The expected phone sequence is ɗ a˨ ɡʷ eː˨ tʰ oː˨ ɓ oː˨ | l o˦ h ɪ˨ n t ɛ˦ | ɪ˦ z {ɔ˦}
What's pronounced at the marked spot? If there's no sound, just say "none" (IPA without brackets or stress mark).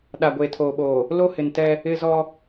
ɔ˦